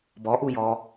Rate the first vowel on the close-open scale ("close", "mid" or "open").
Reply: mid